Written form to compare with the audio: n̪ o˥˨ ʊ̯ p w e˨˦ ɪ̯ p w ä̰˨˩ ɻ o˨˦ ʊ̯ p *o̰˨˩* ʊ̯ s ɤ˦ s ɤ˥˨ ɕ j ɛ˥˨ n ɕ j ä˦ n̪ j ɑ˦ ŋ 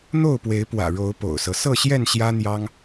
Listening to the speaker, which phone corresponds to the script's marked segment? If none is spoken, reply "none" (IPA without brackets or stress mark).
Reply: o̰˨˩